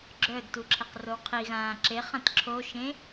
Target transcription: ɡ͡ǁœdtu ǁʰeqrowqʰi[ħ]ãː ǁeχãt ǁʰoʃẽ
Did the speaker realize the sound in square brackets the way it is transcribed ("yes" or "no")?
no